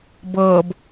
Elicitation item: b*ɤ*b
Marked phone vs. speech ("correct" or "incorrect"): correct